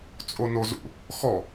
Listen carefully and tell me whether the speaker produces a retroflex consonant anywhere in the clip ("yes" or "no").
no